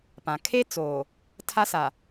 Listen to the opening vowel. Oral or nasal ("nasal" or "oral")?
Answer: nasal